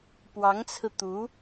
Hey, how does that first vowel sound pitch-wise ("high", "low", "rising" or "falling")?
rising